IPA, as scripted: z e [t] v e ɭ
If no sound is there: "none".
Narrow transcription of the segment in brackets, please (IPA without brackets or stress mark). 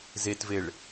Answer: t